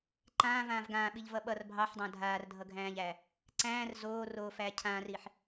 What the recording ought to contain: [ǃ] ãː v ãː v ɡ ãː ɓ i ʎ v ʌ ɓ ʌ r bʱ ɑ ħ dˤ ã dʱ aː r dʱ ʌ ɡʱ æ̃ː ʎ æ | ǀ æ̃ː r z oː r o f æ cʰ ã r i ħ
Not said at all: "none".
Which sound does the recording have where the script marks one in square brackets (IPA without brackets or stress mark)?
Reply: ǃ